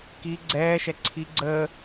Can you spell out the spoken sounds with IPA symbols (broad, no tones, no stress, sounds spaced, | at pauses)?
k i ɡ͡ǀ ɛː ʃ ɛ ǀʰ i ɡ͡ǀ əː